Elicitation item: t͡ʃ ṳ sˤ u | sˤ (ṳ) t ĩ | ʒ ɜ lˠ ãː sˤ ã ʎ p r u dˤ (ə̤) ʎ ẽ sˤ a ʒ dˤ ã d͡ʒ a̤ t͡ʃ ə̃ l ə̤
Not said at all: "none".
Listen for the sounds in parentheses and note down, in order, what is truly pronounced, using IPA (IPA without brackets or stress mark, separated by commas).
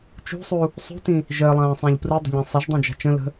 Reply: ṳ, ə̤